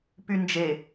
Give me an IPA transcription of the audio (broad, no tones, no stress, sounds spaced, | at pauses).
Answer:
p y n d͡ʒ e